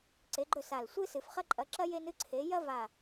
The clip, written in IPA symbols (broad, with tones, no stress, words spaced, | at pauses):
ǀe˨˥ɡ͡ǃɵ˥˨sa˧˩l sʷɨ˥sɨ˨˩˦f χɐ˥ǃʼɐ˨˥ǁɐ˥ je˥nɨ˥ǀʰe˨˥ jɐ˥va˧˩